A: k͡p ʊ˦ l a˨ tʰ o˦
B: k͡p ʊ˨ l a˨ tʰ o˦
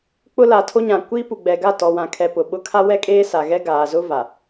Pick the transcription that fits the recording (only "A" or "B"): A